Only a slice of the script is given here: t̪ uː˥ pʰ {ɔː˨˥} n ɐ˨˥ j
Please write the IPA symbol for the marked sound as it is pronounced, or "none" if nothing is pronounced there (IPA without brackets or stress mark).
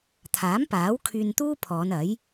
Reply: ɔː˨˧